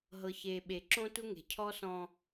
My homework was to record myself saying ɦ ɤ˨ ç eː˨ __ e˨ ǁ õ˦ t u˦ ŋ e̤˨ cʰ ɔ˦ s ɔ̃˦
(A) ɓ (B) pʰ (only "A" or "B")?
A